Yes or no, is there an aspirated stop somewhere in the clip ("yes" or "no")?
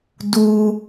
no